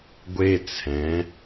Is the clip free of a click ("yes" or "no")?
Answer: yes